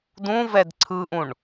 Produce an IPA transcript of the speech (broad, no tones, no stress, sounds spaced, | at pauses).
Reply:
d ũ v ɛ d ǀʰ ɯ ʔ ũ ɳ